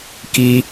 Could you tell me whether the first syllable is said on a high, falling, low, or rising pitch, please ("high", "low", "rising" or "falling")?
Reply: high